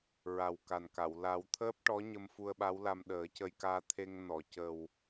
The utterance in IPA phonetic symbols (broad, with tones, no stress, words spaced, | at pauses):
ɹa˨˩wka˨˩nka˨˩˨w la˨˩˦wt̪ʰəː˦˥p̚ʈɔ˧˥ ɲə˧mfu˧ə̯ɓa˧˥wla˧m ɗəː˨˩˦ cə˧jkaː˧t̪ʰe˧ŋ nɔ˨˩˨cə˨˩w